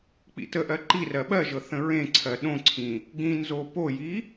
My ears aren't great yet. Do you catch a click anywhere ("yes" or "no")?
yes